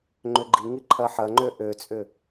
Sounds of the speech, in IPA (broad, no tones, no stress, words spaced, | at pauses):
ŋ͡ǃʏɡ͡ǃiŋi ǃʰɐħɐŋ͡ǃø ʔøt͡sʼʏ